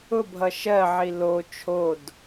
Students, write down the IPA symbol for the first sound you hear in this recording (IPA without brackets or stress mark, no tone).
ʊ